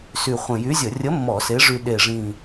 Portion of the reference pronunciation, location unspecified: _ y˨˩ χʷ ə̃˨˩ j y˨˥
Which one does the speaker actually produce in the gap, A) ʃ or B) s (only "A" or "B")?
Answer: B